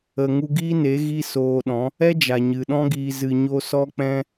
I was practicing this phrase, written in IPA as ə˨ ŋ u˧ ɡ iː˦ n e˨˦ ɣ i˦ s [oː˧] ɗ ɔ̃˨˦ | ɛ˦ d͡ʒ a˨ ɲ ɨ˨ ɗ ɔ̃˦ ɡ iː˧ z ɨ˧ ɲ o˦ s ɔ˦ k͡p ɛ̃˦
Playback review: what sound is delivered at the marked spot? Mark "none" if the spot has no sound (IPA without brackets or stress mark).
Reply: oː˧